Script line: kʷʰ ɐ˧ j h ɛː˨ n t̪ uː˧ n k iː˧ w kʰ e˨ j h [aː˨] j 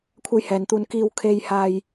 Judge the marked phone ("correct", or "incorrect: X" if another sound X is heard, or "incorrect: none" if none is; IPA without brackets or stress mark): correct